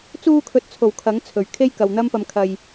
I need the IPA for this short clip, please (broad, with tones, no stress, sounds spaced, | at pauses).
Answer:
t͡s uː˧ kʰ ɵ˨ t̚ t͡sʰ o˨˩ w kʰ ɐ˨˥ ŋ t͡sʰ ɵ˨˩ ɥ kʰ e˥ j k ɐ˨ w n̪ ɐ˥ m p ɐ˧ m kʰ ɐ˧ j